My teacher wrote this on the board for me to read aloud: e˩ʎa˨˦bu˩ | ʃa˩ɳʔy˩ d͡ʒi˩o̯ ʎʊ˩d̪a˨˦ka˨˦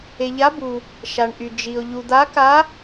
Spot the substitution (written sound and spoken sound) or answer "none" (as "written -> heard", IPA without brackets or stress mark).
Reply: ʊ˩ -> u˩